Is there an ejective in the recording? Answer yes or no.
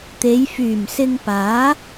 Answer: no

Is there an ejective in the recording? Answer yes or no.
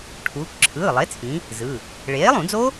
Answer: no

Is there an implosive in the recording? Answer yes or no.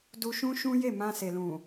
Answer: no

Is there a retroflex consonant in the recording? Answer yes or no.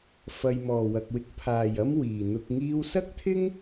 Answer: no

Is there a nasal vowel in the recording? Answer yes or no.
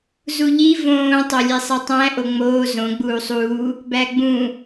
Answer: yes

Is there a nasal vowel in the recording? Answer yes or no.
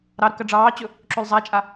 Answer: no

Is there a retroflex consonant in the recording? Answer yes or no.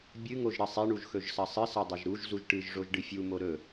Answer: yes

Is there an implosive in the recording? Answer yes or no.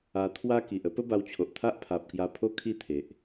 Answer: no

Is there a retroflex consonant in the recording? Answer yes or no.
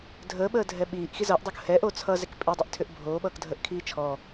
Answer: no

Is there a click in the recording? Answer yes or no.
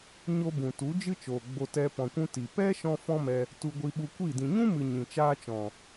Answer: no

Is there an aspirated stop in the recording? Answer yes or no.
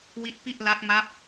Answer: no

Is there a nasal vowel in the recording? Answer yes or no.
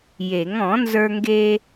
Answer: yes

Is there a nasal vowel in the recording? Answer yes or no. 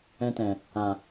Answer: yes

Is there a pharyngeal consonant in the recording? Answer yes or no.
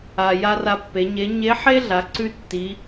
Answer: yes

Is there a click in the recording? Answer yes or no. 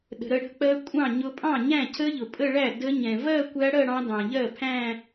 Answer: no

